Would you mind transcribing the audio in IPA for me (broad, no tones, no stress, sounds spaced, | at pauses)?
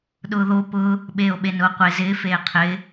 ɗ ʊː ð o p ʊː | ɓ eː o̯ ɓ e n ʊː qʷ e z ɪː f eː qʰ ɪː